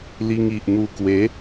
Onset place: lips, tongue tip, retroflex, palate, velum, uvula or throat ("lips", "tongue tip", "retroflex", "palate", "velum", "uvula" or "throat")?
tongue tip